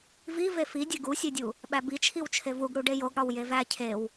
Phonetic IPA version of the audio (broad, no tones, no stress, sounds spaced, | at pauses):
v i v e f i dʲ e ɡ u sʲ e dʲ u | ɓ æ b i t͡ʃʰ i w t͡ʃʰ e v u ɡ ɽ u ɖ e j o ɡ ɽ ɒ w j e v æ cʰ e w